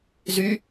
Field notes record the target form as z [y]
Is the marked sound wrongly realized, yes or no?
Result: no